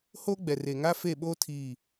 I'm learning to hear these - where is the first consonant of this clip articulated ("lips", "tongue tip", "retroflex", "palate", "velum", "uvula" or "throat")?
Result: throat